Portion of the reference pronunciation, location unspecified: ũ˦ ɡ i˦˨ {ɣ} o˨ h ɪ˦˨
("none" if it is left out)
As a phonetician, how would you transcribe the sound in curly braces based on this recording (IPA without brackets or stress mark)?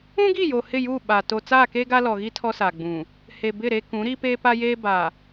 j